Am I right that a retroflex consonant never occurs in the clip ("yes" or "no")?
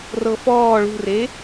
no